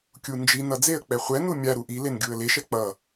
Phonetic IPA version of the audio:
kʲ u n d͡ʒ i n ʌ d͡z e ə̯ k͡p ɛ χʷ ɛ n u mʲ a ɾ u ʔ i l e n ɡʲ u ə̯ l e ʃ ɛ k͡p ʌ

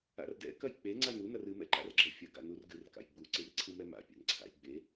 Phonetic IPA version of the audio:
a̰ r d ɛ̰ k ɐ j k͡p e ŋ͡ǀ a n u n ɐ r ɨ m ɛ̰ ǃ a̰ r ɡ͡ǁ ɐ fʲ ɐ ɡ a̰ n u r ɡ ɨ r k a̰ j ɡ͡b u ǀ ɨ r ǀʰ ɨ m ɛ m a̰ pʲ a̰ n ǀʰ a̰ j ɡ͡b e

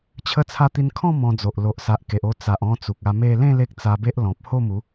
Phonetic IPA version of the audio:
t͡ɕʰ ə˦ t͡sʰ a˦ t̪ i˧ n kʰ ɔ̃˥˧ m ɔ̃˧ d͡z o˨ ʔ l o˨ ʔ s a˨ ʔ k e˨ ʔ o˧ t͡s a˨ ʔ ɔ̃˧ t͡s u˨ k̚ a˧ m e˥˧ l ẽ˥˧ l e˦ k̚ t͡s a˧ b e˦ ʔ l ɔ̃˨ p̚ h o˥˧ m u˨˦

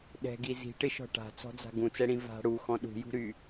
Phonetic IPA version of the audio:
ɗ ɛ̤ ɡ i z i̤ ʈ ɪ ʃ ɔ̤ ʈ a̤ t͡s ɔ̤ d͡z a̤ ɡ ũ t͡s ɛ ɽ ĩ v a̤ ɽ u x ɔ̃ ɗ ṳ j ṳ ɾ y

